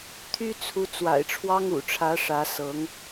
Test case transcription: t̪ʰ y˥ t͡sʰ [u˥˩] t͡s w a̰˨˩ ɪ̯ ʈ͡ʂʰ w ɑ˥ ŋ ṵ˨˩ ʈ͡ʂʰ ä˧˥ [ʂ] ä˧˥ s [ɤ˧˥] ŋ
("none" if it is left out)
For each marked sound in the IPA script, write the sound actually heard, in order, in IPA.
u˧˥, ʂ, ɤ˧˥

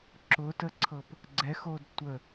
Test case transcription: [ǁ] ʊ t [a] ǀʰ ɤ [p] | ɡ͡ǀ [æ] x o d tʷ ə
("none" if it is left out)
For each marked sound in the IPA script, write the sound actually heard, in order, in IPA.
ǁ, ə, p, ɛ

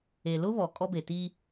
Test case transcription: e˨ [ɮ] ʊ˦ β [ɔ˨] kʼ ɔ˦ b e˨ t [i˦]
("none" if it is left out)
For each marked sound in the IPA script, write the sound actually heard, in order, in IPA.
l, ɔ˨, iː˦

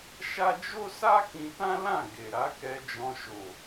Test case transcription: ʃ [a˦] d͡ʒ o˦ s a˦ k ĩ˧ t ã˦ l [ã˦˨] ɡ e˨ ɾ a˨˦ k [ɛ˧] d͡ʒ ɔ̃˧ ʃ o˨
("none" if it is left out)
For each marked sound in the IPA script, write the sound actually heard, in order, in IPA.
a˦, ã˦˨, ɛ˧

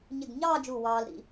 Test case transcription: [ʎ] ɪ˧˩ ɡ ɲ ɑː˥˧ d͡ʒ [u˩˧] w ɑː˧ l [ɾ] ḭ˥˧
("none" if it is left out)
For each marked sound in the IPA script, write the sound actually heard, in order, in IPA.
ɲ, u˧˩, ɾ

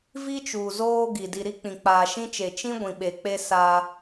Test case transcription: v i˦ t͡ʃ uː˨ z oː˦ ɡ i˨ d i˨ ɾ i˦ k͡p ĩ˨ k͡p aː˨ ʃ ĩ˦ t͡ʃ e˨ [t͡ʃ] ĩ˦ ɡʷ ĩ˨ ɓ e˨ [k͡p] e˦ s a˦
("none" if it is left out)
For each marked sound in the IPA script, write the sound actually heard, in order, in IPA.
t͡ʃ, k͡p

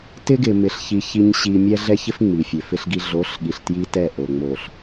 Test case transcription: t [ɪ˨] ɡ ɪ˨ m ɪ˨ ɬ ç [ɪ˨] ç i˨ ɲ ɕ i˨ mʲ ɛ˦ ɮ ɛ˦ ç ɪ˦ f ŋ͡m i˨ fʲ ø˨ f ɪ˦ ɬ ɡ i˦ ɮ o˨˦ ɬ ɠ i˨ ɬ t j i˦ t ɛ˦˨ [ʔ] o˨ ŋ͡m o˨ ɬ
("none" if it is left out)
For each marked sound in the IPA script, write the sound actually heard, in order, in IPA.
ɪ˦, i˨, ʔ

